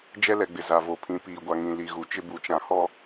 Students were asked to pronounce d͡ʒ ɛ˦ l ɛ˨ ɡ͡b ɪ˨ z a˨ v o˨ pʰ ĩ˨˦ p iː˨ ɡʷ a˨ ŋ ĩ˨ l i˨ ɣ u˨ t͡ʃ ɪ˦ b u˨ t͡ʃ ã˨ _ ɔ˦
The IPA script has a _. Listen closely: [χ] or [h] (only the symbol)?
h